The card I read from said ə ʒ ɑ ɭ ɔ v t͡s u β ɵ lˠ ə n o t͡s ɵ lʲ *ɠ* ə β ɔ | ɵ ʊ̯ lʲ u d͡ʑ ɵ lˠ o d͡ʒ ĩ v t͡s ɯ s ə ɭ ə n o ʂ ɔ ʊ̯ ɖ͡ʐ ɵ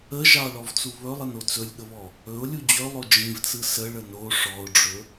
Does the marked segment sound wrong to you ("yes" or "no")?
no